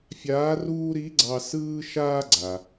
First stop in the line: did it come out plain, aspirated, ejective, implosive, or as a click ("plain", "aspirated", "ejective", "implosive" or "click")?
click